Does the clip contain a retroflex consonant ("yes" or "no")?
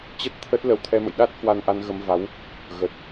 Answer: no